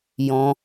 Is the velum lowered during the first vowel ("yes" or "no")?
yes